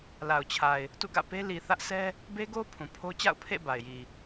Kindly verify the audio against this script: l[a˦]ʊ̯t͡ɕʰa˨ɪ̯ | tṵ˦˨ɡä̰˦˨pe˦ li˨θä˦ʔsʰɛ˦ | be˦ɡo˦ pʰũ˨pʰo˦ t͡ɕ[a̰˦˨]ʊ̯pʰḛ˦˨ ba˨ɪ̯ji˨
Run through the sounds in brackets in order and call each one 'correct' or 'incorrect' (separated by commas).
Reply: incorrect, correct